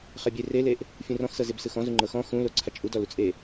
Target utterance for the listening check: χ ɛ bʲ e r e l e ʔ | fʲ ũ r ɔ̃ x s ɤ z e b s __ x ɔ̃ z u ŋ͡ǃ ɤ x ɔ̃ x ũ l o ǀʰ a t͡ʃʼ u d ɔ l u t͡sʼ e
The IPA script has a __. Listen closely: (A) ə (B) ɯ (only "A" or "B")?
B